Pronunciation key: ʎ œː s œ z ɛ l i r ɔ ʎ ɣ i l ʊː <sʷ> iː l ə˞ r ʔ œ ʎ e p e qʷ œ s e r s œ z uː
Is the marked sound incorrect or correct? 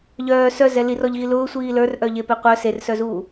correct